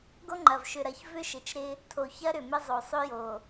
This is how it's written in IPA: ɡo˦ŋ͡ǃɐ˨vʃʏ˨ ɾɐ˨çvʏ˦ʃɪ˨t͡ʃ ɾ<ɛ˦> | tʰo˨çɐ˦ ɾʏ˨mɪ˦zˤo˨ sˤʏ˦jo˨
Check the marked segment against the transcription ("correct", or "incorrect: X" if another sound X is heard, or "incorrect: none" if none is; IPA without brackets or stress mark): incorrect: ɪ˦